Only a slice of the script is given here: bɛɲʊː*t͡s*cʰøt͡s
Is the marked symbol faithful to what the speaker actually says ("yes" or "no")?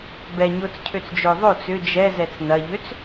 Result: yes